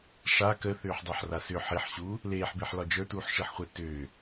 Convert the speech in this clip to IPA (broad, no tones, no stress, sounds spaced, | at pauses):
ʂ a k ə θ ʏː ħ dˤ a ħ r a s ʏ ħ i ħ ɕ uː | l eː ħ b e ħ l ɒ d͡ʒ ə˞ t uː ħ ʂ i ħ χʷ e t ʏː